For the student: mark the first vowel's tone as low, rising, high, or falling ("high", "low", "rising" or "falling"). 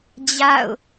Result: falling